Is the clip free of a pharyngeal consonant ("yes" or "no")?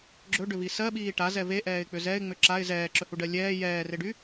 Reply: yes